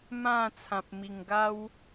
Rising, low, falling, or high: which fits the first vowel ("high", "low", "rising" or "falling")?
falling